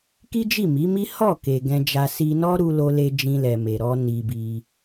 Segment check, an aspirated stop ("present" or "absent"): absent